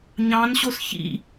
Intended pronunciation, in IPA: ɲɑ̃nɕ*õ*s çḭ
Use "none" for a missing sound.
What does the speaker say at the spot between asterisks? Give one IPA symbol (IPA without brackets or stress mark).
o